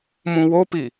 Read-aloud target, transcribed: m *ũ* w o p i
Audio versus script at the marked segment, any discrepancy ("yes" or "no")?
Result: no